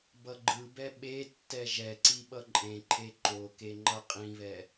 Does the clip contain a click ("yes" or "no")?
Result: yes